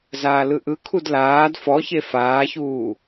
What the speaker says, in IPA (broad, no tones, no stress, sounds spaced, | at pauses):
z aː l ɯ ʔ ɯ kʰ u d l aː d f ɔ ç e f aː ç uː